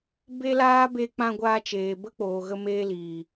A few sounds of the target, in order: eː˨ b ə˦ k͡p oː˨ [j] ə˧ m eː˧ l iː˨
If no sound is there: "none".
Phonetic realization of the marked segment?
ɣ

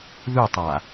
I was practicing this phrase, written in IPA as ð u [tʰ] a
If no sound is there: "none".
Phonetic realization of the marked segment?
tˤ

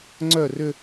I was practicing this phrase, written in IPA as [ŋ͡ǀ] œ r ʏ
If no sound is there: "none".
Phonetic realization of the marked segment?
ŋ͡ǀ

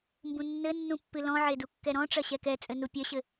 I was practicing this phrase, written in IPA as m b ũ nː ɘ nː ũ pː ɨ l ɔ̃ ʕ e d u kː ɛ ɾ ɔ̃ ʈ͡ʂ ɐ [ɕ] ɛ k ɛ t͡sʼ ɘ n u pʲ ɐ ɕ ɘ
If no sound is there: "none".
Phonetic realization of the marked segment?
ɕ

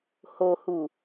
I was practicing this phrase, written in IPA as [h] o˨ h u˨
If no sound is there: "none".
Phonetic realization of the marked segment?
h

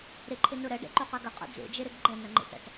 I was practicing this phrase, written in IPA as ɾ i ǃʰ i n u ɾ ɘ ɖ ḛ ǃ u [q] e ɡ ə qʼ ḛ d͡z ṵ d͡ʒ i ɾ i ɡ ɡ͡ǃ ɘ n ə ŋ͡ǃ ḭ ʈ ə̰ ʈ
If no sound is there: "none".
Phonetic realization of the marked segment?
q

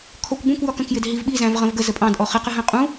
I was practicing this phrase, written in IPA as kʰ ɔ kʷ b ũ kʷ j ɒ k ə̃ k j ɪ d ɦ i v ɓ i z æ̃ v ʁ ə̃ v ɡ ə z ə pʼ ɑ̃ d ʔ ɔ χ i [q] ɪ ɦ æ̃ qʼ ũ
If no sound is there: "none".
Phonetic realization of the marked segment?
q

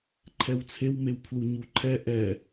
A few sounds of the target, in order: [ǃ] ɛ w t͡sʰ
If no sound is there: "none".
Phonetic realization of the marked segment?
ǃʰ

